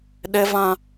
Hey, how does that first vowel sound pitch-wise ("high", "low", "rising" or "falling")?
high